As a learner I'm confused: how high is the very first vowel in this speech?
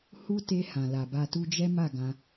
high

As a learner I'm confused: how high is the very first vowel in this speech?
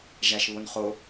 low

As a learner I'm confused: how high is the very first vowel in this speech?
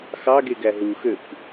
low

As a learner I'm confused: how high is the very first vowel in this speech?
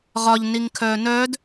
low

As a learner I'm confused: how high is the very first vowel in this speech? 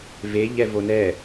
mid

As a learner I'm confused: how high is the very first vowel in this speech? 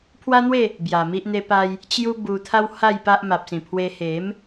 low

